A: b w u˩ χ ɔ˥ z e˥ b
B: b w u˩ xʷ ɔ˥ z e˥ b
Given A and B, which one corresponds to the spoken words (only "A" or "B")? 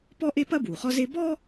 A